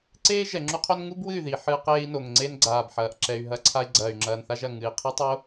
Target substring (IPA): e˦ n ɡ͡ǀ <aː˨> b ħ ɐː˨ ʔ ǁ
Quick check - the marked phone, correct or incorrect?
correct